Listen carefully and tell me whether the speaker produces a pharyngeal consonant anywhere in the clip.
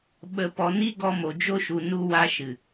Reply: no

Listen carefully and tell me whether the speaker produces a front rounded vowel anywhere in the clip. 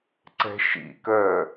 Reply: yes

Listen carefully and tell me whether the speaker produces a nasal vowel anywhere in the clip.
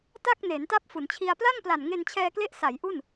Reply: no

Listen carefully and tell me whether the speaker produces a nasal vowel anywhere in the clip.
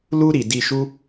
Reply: no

